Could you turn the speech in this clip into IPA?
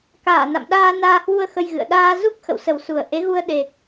k aː˧˩ n a̰˧˨ m ɗ aː˧ n aː˧ h w u˧ ə̯ x ə˧ j ɣ ɨ̰˧˨ ə̯ ɗ aː˧ z u˦˥ k̚ x ə̰˧˨ w s ə˨˩ w s u˨˩ ə̯ ʔ e˨˦ ɣ u˧ ə̯ ɗ e˨˩ k̚

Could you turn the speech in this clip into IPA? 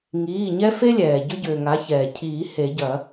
ŋ iː˩˧˩ ɲ ɛ˦ f e˦ lʲ ɛː˩ ɟ ʏ˦ ɟ ʏː˩ ŋ a˩˥ ç ɛː˩ cʰ iː˨˩˦ h e˨˩˦ ɟ ɐ˨˩˦

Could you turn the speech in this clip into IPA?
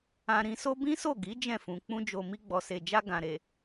ã˧ ɾ ĩ˧ s o˦ b ĩ˦ s o˦˨ ɡ i˨˦ d͡ʒ ɛ̃˦˨ f ũ˨ k͡p ũ˧ d͡ʒ o˨ m i˧ ɡ͡b ɔ˨ s e˨ d͡ʒ a˧ ɡ ã˨ ɾ e˨

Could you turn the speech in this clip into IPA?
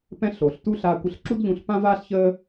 p ɛ̃˧ ɬ o˩ ɬ t u˥ ɬ a˧ kʷ ə˧ ɬ ǁ u˥ d ʎ ũ˧ ɬ p ã˥ v aː˥ ɬ ç əː˥

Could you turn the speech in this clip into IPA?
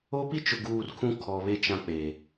o˦ p i˦ t͡ʃ ʊ˨ ɡ uː˨ r kʰ ũ˦ kʰ ɔ˨ β e˦ t͡ʃ ã˦ k͡p e˨

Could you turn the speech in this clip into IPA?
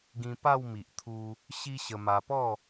ɡ ĩ˧ p a˥˧ w m i˨ ʔ t̪ʰ u˧ | ɕ i˦ ɕ ə˧ m a˧ p ɔ˥˧

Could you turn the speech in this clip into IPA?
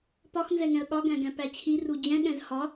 p ɒ x n z ɛ ŋ ɛ̃ ə̯ ɠ ɒ ɡ æ̃ ɡ æ̃ p æ t͡ɕʰ i r u d͡ʑ ɛ̃ ɠ ɛ̃ z h ɒ

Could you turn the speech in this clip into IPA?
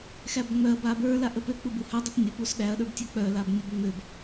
x æ b ŋ͡m œ ɐ̯ b a b ə˞ l a ʔ ə p ø k͡p u b u h œ dˤ u p nʲ ə p u s ɗ æ ɐ̯ ɗ ə˞ b tʲ œ k͡p œ l a b nʲ ə b ŋ͡m ø b

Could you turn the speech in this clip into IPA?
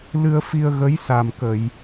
l ɨ˧ ə̯ f i˧ ə̯ ɣ ə˧˥ j s a˨˩ m k ə˨˩˨ j

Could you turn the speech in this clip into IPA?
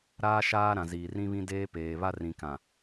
ɾ aː˦ ʃ aː˦ ɾ ã˨ z iː˨ r ĩ˦ β ĩ˦ d eː˦ p eː˨ β a˦ r ĩ˨ k ã˨

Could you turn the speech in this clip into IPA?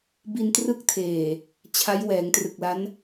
b i˧ n t r ɯ˦˥ k̚ tʰ eː˨˩ | t͡ɕʰ a˦˥ j w ɛː˩˦ ŋ t r ɯ˨˩ k̚ l a˦˥ n

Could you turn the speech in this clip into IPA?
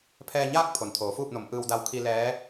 pʰ ɛː˧ ɲ aː˥˨ k̚ pʰ o˩ n t̪ʰ oː˩˧ f uː˥˨ p̚ n o˩˧ m ʔ ɯː˧ w d a˧ w kʰ i˧ l ɛː˧˥

